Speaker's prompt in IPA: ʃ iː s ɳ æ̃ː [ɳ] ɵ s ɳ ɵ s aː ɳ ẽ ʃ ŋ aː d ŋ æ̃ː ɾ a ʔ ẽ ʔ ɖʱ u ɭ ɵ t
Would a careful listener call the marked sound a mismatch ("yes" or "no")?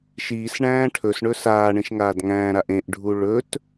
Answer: yes